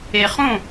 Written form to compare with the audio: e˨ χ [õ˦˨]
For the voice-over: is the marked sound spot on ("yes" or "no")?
yes